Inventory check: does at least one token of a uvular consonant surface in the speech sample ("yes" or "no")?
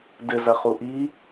yes